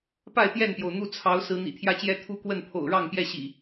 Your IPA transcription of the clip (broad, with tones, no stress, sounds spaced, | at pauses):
p a˥˨ ɪ̯ t̪ j ɛ˥˨ n p j o˩ ʊ̯ n̪ u˥˨ t͡sʰ ɑ˨˦ ʊ̯ s ɹ̩˨˦ n̪ ḭ˨˩ t̪ʰ j ä˦ t͡ɕ j ɛ˦ t̪ʰ u˦ k w ə˥˨ n pʰ o̰˨˩ ʊ̯ ɻ ɑ˥˨ ŋ p j ɛ˥˨ ɕ ḭ˨˩